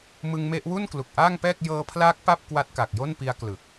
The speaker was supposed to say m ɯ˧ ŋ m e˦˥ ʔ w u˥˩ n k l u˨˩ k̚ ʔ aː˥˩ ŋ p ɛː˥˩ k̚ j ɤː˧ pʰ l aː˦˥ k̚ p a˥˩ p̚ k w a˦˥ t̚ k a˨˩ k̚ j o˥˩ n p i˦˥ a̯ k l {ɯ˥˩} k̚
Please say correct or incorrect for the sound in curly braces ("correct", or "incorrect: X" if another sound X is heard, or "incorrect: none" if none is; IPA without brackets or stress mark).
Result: incorrect: ɯ˨˩